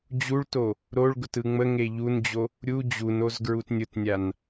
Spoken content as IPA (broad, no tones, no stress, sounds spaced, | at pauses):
d͡ʑ u ɭ t o | ɾ o ɭ ɡ ʊ t ɯ ŋ͡m ə ŋ e ʎ u n d͡ʑ o | ɾʲ u d͡ʑ u n o z ɡ ɹ u t nʲ ʊ t nʲ a n